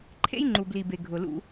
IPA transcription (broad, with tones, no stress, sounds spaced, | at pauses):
ǃʰ ḛ˦ j ŋ͡ǃ u˨ b l i˨ b e˨ ɡʱ ʊ˨ l ṵ˦